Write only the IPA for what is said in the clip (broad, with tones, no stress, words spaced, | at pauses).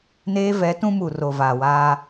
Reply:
neː˦vɛ˨˦tũ˦mu˨ ro˨vaː˨waː˦